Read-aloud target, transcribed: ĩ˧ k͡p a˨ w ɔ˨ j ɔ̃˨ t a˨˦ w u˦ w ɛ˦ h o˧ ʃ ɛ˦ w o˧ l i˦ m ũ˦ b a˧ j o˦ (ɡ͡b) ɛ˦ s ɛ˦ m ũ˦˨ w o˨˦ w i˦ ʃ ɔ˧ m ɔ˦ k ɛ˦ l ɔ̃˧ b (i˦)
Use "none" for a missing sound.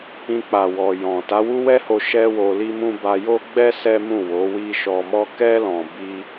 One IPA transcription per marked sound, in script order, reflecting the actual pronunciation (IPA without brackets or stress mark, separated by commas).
ɡ͡b, i˦